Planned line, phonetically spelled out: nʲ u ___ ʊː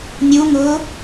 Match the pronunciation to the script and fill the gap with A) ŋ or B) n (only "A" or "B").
A